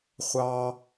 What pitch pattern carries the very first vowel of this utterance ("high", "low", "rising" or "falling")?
high